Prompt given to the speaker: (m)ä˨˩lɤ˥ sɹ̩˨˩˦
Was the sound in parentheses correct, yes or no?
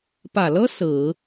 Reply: no